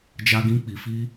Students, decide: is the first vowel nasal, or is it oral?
oral